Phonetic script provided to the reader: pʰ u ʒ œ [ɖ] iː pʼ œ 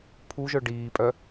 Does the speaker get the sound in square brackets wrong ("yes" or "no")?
no